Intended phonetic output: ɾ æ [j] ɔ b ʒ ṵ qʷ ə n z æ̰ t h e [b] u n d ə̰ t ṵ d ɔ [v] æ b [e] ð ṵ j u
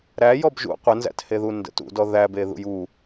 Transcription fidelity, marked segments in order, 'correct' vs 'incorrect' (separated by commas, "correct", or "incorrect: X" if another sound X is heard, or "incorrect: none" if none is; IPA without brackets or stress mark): correct, incorrect: ð, incorrect: ð, correct